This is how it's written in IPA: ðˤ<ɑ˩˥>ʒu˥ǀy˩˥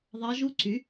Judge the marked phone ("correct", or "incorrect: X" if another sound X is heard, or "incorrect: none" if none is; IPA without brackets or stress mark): incorrect: ɑ˧˥